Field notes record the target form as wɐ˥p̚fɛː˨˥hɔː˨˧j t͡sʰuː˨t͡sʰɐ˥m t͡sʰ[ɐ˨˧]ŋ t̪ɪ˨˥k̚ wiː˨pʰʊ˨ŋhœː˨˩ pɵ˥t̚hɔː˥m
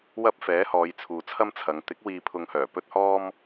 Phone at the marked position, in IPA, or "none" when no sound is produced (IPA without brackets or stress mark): ɐ˨˧